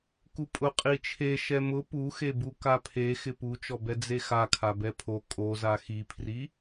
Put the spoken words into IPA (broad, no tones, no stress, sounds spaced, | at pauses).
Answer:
k u pʼ ʊ qʼ i t͡ʃʰ e ʃ ɛ m ʊ p u x e b u k a pʰ e x ɪ p u t͡ʃ ɔ b ɛ d͡z e x a kʰ a b ɛ pʰ o kʼ o z a x i pʰ r i